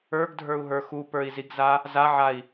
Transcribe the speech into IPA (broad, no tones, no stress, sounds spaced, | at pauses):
ə˞ ɡ dʱ ə˞ u̯ ɦ ə˞ x u p ə˞ i̯ z i ɡ z a | z a ʕ a i̯